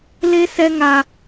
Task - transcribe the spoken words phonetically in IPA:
le˦sɛ˦ŋa˦

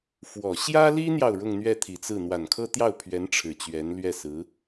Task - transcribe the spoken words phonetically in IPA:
fwɔ˨˩ ɕjä˥li˥n̪jɑ˨ʊ̯ ɻʊ˥˧ŋn̪ɥɛ˥˩t̪ʰi˨˩t͡sɹ̩˥˩ n̪wa˨˩nkʰɤ˥t̪jɑ˥˩ʊ̯pʰɥɛ˧˥n ʈ͡ʂʰɻ̩˨˩t͡ɕɥɛ˧˥nlɥɛ˥˩sɹ̩˧˥

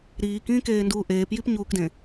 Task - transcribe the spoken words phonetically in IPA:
ɾiːkĩːkeːnduː ʔeːpjipɲuːkdẽ

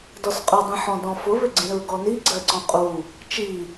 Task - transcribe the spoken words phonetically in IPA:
dɔsqʼʊdˤĩ ħɔ̃dɔ̃fʊβʏ ɡ͡ǀĩɹɡɔni ɡ͡ǀɜǀɔ̃qʼu | t͡ʃi

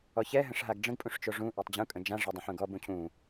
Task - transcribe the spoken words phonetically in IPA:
ɔçɛ ɦə̃ʂɦaɡɖ͡ʐə̃ɡ pʼũʂt͡ʃoʐũ ʔɛtˤd͡ʑũ kʼə̃d͡ʒã ʐɛdˤə̃ħũɡɔb ũcʰũ

